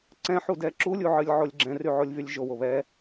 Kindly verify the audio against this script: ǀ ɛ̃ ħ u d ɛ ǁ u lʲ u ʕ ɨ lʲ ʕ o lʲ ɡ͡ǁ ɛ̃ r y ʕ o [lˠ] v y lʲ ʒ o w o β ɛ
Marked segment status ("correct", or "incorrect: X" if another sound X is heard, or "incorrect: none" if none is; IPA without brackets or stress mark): incorrect: lʲ